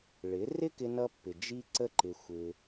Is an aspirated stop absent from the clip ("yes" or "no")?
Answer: yes